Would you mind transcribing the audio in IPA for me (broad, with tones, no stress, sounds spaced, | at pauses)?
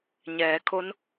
ɲ ɛː˩˧ kʰ o˧˥ n